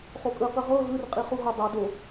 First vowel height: mid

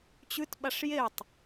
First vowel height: high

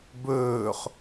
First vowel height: mid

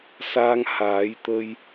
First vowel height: low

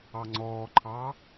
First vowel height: low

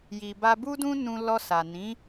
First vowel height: high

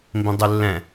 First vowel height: high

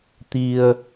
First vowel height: high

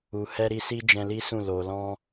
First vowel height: high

